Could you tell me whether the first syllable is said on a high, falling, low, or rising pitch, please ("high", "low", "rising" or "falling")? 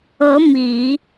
rising